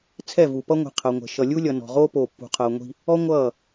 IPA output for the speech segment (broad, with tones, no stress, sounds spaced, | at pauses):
t͡sʰ ɛ˦˨ v u˨ p ʌ˦ ŋʷ i̤˨ qʰ ʌ˨ ŋʷ ɛ̤˨ ʃ ʌ˨ lʲ u˦ lʲ ʌ˨ n ɔ̤˨ ʁ oː˦ p oː˨ pː ṳ˨ qʰ ʌː˨ ŋʷ i̤˦ | ɔ˦ ŋʷ ʌː˦˨